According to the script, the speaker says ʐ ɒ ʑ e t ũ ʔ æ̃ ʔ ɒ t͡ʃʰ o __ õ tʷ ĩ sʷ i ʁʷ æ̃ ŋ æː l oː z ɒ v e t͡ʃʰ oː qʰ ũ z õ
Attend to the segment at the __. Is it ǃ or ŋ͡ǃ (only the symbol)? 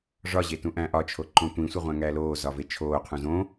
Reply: ǃ